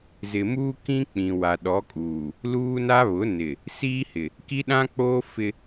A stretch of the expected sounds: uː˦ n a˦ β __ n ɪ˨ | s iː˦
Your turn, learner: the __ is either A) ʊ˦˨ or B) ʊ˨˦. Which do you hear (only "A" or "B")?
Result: B